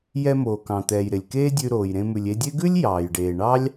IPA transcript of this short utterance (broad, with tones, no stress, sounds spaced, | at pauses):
j ɛ˧ m oː˩ k ɑ̃˩ t̪ ɛː˩ j ɾ ɪ˩ lʲ k eː˥ dʲ ʉ˧ ɾ oː˩ j ɾ ẽ˧ m ʉ˩ lʲ e˧ dʲ e˥ ɡ ʉ˥ lʲ j ɑː˩ j ɖ eː˩ ɳ ɑ˥ lʲ